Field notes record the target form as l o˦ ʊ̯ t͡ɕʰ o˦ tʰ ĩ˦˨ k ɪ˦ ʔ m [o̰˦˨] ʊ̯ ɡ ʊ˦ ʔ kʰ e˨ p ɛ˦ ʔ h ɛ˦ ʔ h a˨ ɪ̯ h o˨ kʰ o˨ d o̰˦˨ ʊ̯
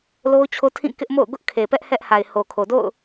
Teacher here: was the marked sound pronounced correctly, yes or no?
yes